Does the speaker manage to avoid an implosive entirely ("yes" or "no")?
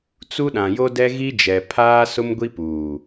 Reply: no